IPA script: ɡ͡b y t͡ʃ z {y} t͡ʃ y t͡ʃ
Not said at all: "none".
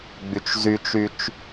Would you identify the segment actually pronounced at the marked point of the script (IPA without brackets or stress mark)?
y